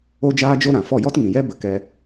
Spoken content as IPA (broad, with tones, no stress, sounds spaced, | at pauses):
o˦ d͡ʒ aː˦ d͡ʒ o˦ ɾ ã˨ f ɔ˦˨ j ɔ˦ t ŋ ĩ˨ j ɛ˦ b ə˧ k ɛ˧